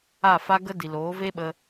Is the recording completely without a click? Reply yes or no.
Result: yes